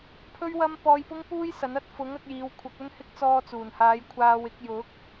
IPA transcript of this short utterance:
pʰ ɵ˥ ɥ w ɐ˥ m p ɔː˧ j p ʊ˥ ŋ p uː˥ j s ɐ˨˥ n ɐ˧ t̚ f ʊ˨˥ ŋ ɐ˧ k̚ j iː˨˧ w kʷʰ ɐ˨˥ k̚ ɵ˥ n h ɪ˥ k̚ t͡s ɔː˧ t͡s uː˨˩ n h aː˨˧ j kʷʰ aː˧ w ɪ˨˥ k̚ j ʊ˨˥ k̚

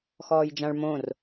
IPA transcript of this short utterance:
x ɔː j d͡ʒ ã ɭ m õ r

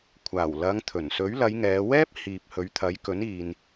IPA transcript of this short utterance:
kʷʰ aː˨˩ w l ɐ˨˧ ŋ t̪ʰ ɵ˨˩ n s ɵ˨˥ ɥ l ɐ˨˧ j ŋ ɛː˨˧ w ɛː˥ p̚ h iː˨ p̚ h ɵ˨˧ ɥ t̪ʰ ɐ˨˥ j k ɵ˨˥ n iː˨ n

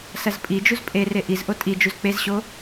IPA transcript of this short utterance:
s ɐ z pʼ i d͡ʒ u z pʼ e r e ʔ i z ʔ o tʼ i d͡ʒ u z k͡p e z ɕ o

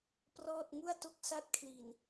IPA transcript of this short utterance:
p r ɔː˥˩ t̚ ŋ u˥˩ a̯ t o˥˩ k̚ s a˦˥ t̚ kʰ l i˨˩ n

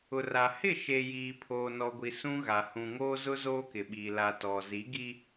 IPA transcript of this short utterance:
ʊ˨ r a˨ h ɪ˦˨ ʃ e˨ j iː˨ pʰ oː˨ n ɔ˨ ɡʷ i˨ s ũ˦ ɣ a˨ h ũ˨ ŋ oː˦ z ʊ˦ z oː˦ k ɪ˨ ɓ iː˨ l a˨ t ɔ˨ z i˨˦ ɡ i˦

